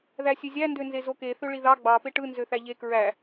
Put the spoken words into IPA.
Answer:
ð æ sʲ ø zʲ æ n d ø n z e z o k e θ ø ɭ i ð ɑ ɡ͡b ɑ p e ʈ ɯ n z ø θ æ ʎ e k ɹ æ

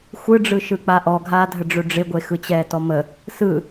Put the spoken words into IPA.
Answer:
xʷ ɯ ɖ͡ʐ ɯ ʃ ɯ k͡p a ʔ ɔ ɡʱ aː dʱ ə ɖ͡ʐ ɵ ɖ͡ʐ ɪ ɡʷ e x ɯ t͡ɕ ɛː t ɔ m ə | s ɯ

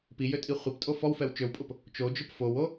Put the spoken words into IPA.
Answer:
p i j ø tʼ i χʷ i p tʼ o f ɔ w f ɛ w t͡ʃ ø w pʼ ʊ p | t͡ʃ o d͡ʒ ʊ p f o w o

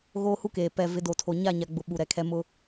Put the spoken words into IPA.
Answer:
ɣ oː˦ h u˦ k eː˨ p ɛ˨ v ɪ˨˦ d o˨ tʰ o˨ ɲ a˦˨ ɲ a˨ ɡ͡b ʊ˨ ɓ u˨ ɾ ɛ˨ kʰ ɛ˦ m ʊ˦

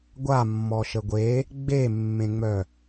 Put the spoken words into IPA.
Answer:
ɡʷ a mː ɔ ʃ ə ɡʷ e | ɡ͡b e mː ẽ ŋ͡m œ

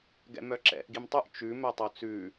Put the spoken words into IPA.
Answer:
ɡ ɛ̰ m œ ǁ ɛ̰ ʔ ɡ i m tˤ ʉ ʔ t͡ʃ ʉ m œ tˤ o t͡s ʉ

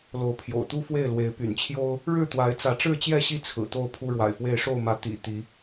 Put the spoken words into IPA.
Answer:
l o˨˦ ʊ̯ pʰ j o̰˨˩ ʊ̯ t̪ u˦ f w e˥˨ ɪ̯ l w e˨˦ ɪ̯ p y̰˨˩ n t͡ɕʰ j o˦ ʊ̯ | ɻ ɻ̩˥˨ t̪ w a˨˦ ɪ̯ t͡s ä˨˦ ʈ͡ʂ ɻ̩˥˨ t͡ɕ j ɛ˥˨ ɕ i˥˨ t͡sʰ ɹ̩˨˩ t̪ o˥˨ ʊ̯ pʰ u˦ ɻ w a̰˨˩ ɪ̯ f w e˥˨ ɪ̯ ʂ o˥˨ ʊ̯ m ä˨˦ t̪ ḭ˨˩ t̪ i˨˦

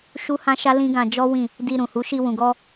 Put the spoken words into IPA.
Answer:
ʃ u˦ h ã˦ ʃ a˦ l ĩ˦ ɡ ã˧ d͡ʒ ɔ˦ w ĩ˦˨ | d i˧ ɾ ũ˨ h u˨˦ ʃ i˧ w ũ˨ ɡ ɔ˧

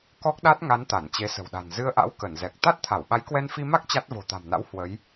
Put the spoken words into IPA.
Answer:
k ɔ˦˥ k̚ ɗ a˦˥ t̚ ŋ a˨˦ n t̪ a˧˩ n t͡ɕ e˨˦ s ə̤˨˩ w ɗ a̤˨˩ n z ɨ˧ ə̯ ʔ a̰˧˥ w k ə˧˩ n z ɛ˨˩ k̚ t̪ a˦˥ t̚ t̪ʰ a˧˩ w ɓ a˨˦ j k w ɛ˧ n f i˧ m a˦˥ k̚ t͡ɕ a˦˥ t̚ v o̤˨˩ t̪ a̤˨˩ m n a̰˧˥ w h w ə˨˦ j

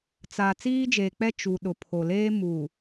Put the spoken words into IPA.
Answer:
t͡s a˨ t͡s iː˦ d͡ʒ eː˨ k͡p ɛ˦ t͡ʃ u˨ ɗ ʊ˨ pʰ o˨ l eː˦ m u˨

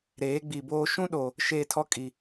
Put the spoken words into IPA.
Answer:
ɾ eː˨˦ ɡ͡b i˨ b oː˦ ʃ ũ˦ ɗ o˨ | ʃ e˦ tʰ ɔ˦ kʼ i˨

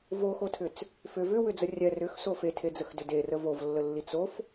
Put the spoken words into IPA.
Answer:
v o x o tʰ ʏ t͡s | f ʏ v ʏ w ʏ d͡z ə rʲ ɛ r ʏ x s o f e tʰ e d͡z ə x d ʏ d e r ə v o v lː ə lː i t͡s o f

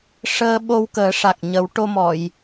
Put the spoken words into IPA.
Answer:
ʂ əː˧ ɓ o˧ w k əː˨˩˦ ʂ a˨˩ k̚ ɲ ə˨˩˦ w ʈ o˧ m ɔ˨˩˨ j

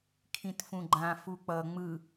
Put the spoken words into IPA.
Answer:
kʰ ĩ t f ũ ɡ͡ǃ ã f u k͡p ʌ ŋ͡m ɯ

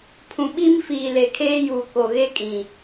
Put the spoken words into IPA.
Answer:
pʰ ũ˨ ɓ i˦ m f iː˨ l e˨ kʰ eː˦ j uː˨ k o˨ ɣ e˦ kʼ ĩ˨

